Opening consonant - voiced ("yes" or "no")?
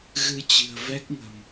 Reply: yes